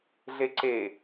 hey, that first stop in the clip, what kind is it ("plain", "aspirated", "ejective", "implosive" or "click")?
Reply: click